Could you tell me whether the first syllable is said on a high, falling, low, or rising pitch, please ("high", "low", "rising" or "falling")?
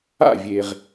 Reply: falling